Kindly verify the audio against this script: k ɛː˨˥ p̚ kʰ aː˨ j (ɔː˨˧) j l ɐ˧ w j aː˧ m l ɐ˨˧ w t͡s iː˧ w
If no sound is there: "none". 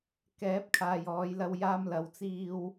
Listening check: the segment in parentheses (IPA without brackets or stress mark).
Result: ɔː˨˧